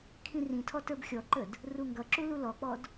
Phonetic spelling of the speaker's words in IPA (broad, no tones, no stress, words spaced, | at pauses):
kʰĩrĩtʰɔ tə˞bxʲɔǃəd | ruŋɡʌǁu lulɔk͡pɔd